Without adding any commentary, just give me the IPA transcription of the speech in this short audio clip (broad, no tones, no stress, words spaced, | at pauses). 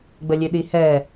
ɡ͡bəlʲʉɗihɛ